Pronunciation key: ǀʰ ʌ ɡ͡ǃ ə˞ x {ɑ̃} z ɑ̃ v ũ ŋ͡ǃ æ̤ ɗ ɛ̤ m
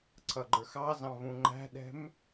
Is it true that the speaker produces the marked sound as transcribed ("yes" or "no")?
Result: no